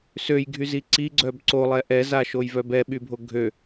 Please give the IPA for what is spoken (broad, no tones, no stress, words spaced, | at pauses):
søjɡʱyzi ǀiɡ͡ǀœb ǀolˠɛ ʔɛzaʃojvœ bɛɓybʱo ɡʱø